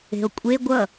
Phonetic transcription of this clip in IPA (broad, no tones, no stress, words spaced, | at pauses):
e̤o̯kʷʼe ɡʷʌ